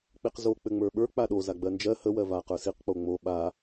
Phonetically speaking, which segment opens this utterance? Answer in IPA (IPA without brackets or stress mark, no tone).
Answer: k͡p